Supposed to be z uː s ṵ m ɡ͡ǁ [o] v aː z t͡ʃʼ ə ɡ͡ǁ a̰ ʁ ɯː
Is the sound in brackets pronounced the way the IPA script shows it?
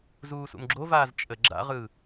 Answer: yes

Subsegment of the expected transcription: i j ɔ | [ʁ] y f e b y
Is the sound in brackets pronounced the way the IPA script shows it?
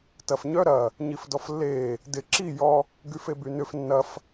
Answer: no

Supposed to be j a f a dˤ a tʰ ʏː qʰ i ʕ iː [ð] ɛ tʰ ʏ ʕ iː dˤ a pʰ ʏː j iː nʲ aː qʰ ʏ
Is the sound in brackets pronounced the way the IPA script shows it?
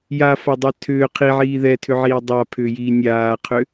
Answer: yes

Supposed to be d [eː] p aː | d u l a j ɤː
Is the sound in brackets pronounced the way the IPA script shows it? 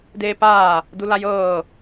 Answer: yes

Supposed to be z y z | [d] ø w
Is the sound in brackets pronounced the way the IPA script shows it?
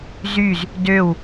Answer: yes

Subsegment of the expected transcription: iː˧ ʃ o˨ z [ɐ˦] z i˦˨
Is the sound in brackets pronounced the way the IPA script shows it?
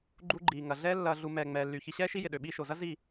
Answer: yes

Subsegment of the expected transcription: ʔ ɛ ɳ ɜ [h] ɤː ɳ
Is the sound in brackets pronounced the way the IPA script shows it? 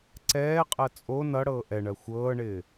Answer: no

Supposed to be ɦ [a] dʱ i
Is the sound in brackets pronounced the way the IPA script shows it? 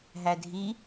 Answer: no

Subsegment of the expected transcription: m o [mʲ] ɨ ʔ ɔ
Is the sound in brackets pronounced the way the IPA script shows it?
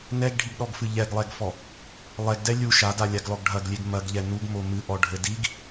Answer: no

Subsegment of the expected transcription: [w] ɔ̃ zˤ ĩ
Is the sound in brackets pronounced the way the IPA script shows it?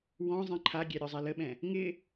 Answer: yes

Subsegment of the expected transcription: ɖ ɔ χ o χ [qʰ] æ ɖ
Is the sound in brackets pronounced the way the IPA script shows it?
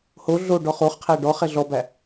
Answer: yes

